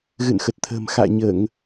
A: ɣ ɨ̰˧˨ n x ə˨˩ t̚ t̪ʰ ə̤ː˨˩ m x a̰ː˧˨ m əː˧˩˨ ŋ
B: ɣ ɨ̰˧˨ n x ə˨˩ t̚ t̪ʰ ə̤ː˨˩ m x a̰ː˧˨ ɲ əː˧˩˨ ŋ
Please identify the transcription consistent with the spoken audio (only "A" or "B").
B